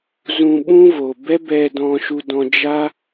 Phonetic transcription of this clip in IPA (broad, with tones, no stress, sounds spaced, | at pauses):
z ũ˧ ɓ ũ˦ v o˨ b ɛ˦ b ɛ˧ d ɔ̃˧ ʃ u˧ d ɔ̃˧ d͡ʒ a˦